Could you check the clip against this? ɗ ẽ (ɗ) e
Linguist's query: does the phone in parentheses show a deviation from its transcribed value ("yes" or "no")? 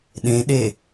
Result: no